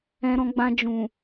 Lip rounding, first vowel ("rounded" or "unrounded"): unrounded